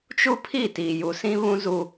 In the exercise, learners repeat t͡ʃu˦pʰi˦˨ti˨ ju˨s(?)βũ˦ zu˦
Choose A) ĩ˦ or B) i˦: A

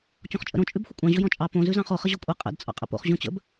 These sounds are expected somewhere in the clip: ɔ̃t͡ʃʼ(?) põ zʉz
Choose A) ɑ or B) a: A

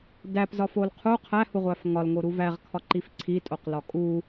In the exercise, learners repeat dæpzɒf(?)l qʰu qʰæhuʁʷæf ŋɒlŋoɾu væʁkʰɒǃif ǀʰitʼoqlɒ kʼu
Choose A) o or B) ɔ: A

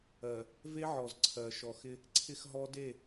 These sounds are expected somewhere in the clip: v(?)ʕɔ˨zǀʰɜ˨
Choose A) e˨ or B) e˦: B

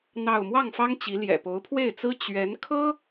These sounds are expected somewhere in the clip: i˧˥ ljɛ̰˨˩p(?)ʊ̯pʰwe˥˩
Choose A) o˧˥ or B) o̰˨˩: A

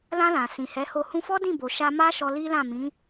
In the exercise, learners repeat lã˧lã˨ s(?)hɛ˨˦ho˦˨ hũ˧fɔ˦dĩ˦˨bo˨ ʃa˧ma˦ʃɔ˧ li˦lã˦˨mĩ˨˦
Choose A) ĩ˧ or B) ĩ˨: B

